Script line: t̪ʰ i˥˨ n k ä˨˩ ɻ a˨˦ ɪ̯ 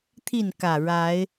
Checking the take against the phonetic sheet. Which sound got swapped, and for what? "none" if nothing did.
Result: none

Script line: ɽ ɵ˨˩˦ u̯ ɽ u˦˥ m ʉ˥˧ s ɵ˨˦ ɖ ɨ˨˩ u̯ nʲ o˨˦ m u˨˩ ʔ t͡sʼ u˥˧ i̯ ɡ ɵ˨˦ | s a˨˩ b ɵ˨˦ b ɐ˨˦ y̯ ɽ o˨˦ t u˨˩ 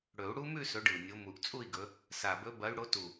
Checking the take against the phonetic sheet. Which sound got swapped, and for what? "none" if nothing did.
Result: none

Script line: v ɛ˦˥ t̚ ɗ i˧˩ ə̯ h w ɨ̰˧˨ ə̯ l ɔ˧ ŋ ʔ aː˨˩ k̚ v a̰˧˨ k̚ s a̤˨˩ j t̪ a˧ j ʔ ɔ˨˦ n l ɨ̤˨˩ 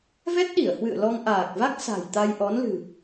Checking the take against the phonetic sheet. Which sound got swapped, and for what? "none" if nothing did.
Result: a̰˧˨ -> a˦˥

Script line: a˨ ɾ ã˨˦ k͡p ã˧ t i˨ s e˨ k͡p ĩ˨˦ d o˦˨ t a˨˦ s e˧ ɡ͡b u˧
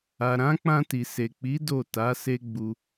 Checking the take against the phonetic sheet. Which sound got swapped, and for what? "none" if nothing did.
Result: ĩ˨˦ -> i˨˦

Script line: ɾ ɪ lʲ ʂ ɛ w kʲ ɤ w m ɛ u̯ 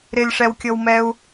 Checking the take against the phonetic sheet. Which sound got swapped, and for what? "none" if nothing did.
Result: none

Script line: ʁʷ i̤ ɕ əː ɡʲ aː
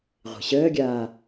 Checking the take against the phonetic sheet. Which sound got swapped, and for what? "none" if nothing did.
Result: none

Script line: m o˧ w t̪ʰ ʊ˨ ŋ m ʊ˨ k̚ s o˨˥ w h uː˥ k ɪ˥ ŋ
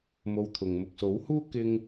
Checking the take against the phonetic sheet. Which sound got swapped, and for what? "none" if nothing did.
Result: none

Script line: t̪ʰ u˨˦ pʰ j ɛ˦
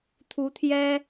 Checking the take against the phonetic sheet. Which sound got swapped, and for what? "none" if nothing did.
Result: pʰ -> t̪ʰ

